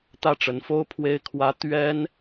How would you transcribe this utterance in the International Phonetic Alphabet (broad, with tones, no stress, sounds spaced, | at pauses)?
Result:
t̪ ä˥˩ ʈ͡ʂ ə˧˥ n f o˥ ʊ̯ pʰ w e˥ ɪ̯ kʰ w ä˥ t̪ ɥ ɛ˥ n